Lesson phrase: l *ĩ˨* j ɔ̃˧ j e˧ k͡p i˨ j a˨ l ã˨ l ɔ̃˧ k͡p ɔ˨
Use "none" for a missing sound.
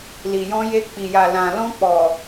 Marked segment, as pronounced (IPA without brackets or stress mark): i˨